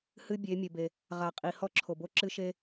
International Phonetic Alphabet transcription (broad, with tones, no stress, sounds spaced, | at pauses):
h ɨ˦ bʲ e˨˦ mʲ ɘ˨ b e˨ | ʁ a˨ qʼ i˨ h ɔ˦ ǁʰ o˨ b o˦ ǁ ɨ˦ ʃ e˦